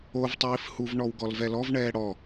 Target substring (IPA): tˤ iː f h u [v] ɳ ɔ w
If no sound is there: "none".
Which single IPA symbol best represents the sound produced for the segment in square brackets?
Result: v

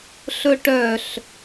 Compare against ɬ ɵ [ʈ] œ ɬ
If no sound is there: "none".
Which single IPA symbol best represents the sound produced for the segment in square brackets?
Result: ʈ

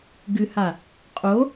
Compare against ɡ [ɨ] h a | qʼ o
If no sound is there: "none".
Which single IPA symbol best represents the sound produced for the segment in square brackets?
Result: ɨ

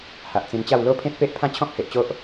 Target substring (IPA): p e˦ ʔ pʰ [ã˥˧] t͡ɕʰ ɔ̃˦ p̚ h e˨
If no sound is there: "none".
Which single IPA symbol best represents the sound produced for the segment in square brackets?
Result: ã˥˧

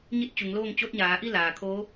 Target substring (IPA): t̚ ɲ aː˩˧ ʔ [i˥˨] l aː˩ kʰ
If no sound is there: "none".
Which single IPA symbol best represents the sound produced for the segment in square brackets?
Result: i˥˨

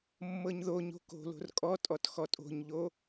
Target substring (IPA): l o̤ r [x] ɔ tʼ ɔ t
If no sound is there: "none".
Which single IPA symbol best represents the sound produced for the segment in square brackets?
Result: kʼ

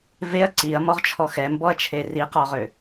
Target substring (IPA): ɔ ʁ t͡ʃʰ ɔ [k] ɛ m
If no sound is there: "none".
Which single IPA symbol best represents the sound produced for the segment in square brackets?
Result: x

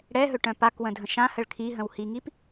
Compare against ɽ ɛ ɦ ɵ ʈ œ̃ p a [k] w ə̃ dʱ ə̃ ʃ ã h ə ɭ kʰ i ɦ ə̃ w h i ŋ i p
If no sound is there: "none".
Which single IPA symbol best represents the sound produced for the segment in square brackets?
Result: k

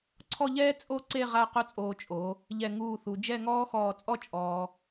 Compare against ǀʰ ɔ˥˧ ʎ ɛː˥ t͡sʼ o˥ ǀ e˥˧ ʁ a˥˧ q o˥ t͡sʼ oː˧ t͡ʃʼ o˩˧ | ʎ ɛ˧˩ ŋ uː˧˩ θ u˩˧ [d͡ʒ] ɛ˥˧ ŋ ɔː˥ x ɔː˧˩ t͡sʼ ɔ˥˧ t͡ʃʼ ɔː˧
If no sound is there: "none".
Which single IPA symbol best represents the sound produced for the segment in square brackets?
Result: d͡ʒ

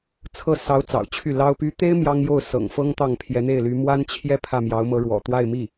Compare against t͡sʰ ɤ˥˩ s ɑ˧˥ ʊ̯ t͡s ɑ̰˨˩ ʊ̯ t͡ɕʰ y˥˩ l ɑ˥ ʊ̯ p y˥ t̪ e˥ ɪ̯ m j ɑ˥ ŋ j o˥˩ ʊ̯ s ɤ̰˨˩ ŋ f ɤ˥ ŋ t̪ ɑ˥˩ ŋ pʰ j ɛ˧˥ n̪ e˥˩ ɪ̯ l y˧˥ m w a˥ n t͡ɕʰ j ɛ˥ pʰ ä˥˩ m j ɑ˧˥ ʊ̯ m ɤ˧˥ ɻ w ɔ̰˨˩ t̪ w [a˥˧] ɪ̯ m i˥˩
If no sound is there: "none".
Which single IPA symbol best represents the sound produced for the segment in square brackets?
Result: a˥˧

